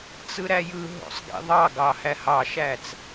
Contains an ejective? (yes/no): no